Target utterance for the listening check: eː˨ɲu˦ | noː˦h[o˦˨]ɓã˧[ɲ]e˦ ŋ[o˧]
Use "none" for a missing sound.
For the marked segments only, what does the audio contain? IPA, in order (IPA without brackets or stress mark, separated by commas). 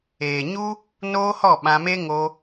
ɔ˦˨, m, o˧